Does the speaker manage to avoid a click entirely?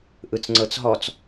no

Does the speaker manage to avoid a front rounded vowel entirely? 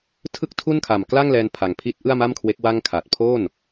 yes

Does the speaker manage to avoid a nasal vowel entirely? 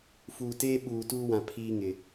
no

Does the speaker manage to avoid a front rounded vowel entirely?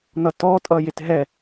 yes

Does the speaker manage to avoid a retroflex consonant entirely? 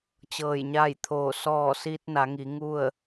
yes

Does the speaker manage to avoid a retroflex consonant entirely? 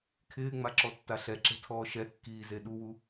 yes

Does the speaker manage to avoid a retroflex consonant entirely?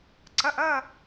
yes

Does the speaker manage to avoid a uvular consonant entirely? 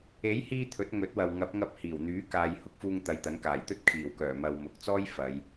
yes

